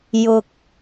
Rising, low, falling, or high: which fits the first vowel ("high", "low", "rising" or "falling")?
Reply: low